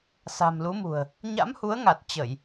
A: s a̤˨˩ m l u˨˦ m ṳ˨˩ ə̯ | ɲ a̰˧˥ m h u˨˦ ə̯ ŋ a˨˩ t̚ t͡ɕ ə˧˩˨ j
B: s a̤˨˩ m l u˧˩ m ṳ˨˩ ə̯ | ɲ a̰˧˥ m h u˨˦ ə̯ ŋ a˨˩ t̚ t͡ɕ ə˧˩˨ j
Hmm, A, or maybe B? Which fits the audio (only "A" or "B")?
A